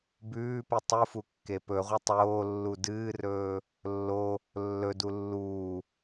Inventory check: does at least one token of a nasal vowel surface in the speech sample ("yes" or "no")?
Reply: no